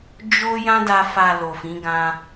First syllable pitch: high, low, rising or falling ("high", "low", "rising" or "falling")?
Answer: high